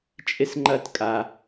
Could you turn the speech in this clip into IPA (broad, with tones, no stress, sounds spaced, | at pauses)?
t͡ʃʼ ɪ˦ s ŋ͡ǃ ɐ˦ t kʼ a˧